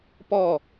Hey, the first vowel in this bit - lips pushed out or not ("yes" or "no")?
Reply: yes